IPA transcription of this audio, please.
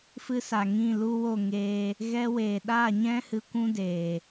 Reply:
f ɨ˧ s a˨ ŋ ĩ˦˨ l u˦ w o˦˨ ŋ eː˧ | ɣ ɛ˧ w eː˨ ɗ a˦˨ ɲ ɛ̃˦ h ɨ˧ kʷ ũ˦ d eː˨

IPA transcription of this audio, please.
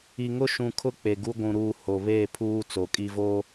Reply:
i˨ ŋ ʊ˦ ʃ ũ˨ kʰ ʊ˦ k͡p e˨ ɡ u˦ ɡʷ ũ˨ ɾ uː˨ h o˨ β eː˦˨ pʰ uː˦ t͡s o˨ kʼ i˨ v o˦

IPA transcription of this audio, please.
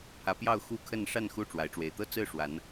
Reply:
pʰ ä˨˦ p j ɑ˥˨ ʊ̯ x u˦ kʰ ə˥˨ n ʂ a˥˨ n x u˥˨ ʈ͡ʂ w a˨˦ ɪ̯ ʈ͡ʂ w e˨˦ ɪ̯ t̪ ɤ˥˨ t͡s ɹ̩˥˨ ʂ w a˨˦ n

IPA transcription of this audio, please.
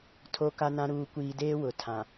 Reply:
tʰ o˦ k a˦ n ã˦ ɾ uː˨ kʷ iː˨ d eː˦ w ʊ˨ tʰ ã˨

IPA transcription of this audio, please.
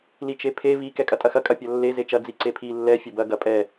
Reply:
l i t͡ʃ e pʰ e v i k ɛ kʼ ɐ tʼ ɐ x ɐ kʼ ɐ pʲ ɐ lː e z e t͡ʃ ɐ d͡z i ǀ e pʰ i lː ɛ fʲ ɐ b ɐ ɡ ɐ pʼ ɛ

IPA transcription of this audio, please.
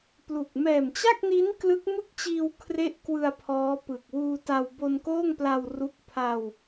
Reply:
p l u˨˩ k̚ m ɛː˨˩ m t͡ɕ a˥˩ k̚ n i˦˥ n k l ɯ˦˥ k̚ m ɯ˥˩ k̚ t͡ɕ iː˧ w kʰ r e˥˩ ʔ k w ɯ˧ a̯ pʰ ɔː˦˥ p ɯ˨˩ k̚ w uː˧ t a˧ w b o˧ n k oː˥˩ ŋ p l a˧ w r u˦˥ k̚ pʰ a˧ w

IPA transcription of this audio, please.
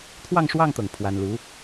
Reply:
t̪ʰ w ɑ˥˧ ŋ ʂ w ɑ˥˧ ŋ t̪ ɤ˥˩ ŋ pʰ w a˥ n l u˧˥

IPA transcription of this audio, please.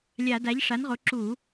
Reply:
lʲ a˧˩˧ d a˩˥ ʎ ʂ a˩˥ n ʁ o˩˥ ǁ u˧˩˧

